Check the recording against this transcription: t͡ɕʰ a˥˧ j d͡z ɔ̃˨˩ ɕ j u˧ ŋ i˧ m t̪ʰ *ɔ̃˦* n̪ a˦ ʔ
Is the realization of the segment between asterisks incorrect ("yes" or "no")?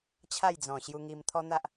yes